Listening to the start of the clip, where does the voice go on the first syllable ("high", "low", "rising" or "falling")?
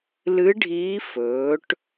rising